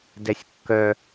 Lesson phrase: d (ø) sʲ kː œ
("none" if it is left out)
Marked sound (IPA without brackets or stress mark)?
ɛ